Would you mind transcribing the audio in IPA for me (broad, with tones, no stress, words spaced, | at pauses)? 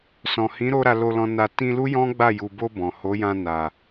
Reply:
sɔ̃˨hĩ˨˦ɾo˧ ɾa˧lo˧lɔ̃˧na˧ tĩ˧lu˦ jɔ̃˦ɡ͡ba˦˨ ju˨bo˧ bɔ̃˨ ho˨˦jã˧ na˨